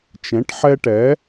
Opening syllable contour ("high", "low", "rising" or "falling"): rising